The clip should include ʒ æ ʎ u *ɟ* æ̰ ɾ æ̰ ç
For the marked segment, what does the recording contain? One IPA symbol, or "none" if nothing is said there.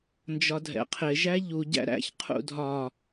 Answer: ɟ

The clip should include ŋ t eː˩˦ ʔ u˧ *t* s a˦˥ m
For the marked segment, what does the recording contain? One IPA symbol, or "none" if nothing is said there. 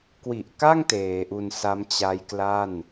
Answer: n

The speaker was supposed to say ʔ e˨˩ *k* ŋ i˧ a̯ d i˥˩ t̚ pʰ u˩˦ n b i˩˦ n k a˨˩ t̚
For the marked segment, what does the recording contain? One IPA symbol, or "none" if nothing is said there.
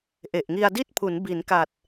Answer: ʔ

